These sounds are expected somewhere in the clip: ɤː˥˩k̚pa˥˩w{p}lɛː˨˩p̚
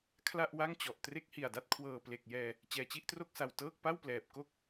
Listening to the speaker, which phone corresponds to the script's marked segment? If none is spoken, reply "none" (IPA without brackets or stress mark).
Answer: p